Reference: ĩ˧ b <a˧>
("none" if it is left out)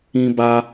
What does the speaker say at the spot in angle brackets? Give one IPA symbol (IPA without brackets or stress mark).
a˧